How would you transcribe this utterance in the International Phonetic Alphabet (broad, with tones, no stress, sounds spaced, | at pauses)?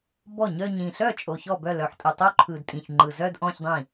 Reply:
b ɔ˥˩ ɲ œ˥˧ ɲ ĩ˨˩ ɬ œ˥˩ t͡ʃʼ o˨˩ ç ɔ˥˩ b œ˥˩ l œ˨˩ ħ tʼ ɯ˨˩ tˤ o˥˧ ǃʰ ɯ˨˩ d tʼ ĩ˨˩ ç ŋ͡ǃ ɯ˨˩ z œ˥˧ d ʔ ɔ̃˥˧ ç dˤ ĩ˥˩